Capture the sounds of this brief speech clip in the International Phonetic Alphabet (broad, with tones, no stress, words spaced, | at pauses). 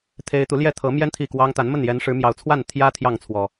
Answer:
t̪ʰe˦ɪ̯ t̪u˨˦ljɛ˥˨ t̪ʰɤ˨˦mjɛ˦n t̪ʰi˥˨kwɑ˦ŋ t̪a˨˦nmə˥˨n jɛ˨˦nʂɻ̩˨˦mjɑ˨˩ʊ̯t͡sʰwa˥˨n t̪ʰjä˦ t̪ʰjɑ˥˨ŋt͡sʰwɔ˨˩